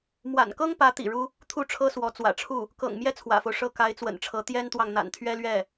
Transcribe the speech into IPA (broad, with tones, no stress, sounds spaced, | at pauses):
m w a̰˨˩ n k ɤ˥ ŋ p ä˧˥ t̪ ḭ˨˩ ɻ u˥ | t̪ʰ u˥˩ ʈ͡ʂʰ ɤ˥ s w ɔ˧˥ t͡s w ä̰˨˩ ʈ͡ʂʰ u˥˩ | k ɤ̰˨˩ ŋ m j ɛ˥ t͡sʰ w ä̰˨˩ f o˦ ʊ̯ ʂ ɤ˥˩ k a˧˥ ɪ̯ t͡s w ə̰˨˩ n ʈ͡ʂʰ ɤ˧˥ t̪ j ɛ˥ n t̪ w ɑ˨ ŋ n̪ a̰˨˩ n t̪ʰ ɥ ɛ˥ l ɥ ɛ˥˩